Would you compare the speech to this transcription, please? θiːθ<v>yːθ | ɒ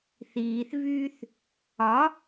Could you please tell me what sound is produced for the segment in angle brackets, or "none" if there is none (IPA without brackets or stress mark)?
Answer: v